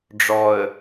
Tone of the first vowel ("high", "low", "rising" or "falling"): low